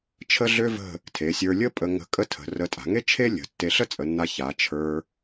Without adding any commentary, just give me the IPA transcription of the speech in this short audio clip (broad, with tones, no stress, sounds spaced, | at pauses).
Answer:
t͡ʃʰ ə˥ ɮ ø˥ v ə̤˥˧ | tʰ e˩˧ sʲ ə˞˧ lʲ ə˥ pʼ ə˧ ŋ ə̤˧ kʼ ə˥˧ tʰ ə̤˩˧ r ə˧ tʼ a̤˩˧ ŋ e˥ t͡ʃʰ e˥ lʲ ə̤˩˧ tː e˧ ɬ ə˥ t͡sʼ ə˩˧ nː a˧ ç a˩˧ t͡ʃʰ ə˞˧